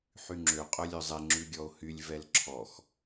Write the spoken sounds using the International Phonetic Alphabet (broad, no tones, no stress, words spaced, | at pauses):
ħyŋ͡ǁø qʼœlʲœzˤɛ ŋ͡ǁʉɡʲɔo̯hylʲ vɛlǁʰɔx